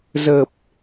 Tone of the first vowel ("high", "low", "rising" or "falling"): low